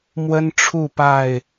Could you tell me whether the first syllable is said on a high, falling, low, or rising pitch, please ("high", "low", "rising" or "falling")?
high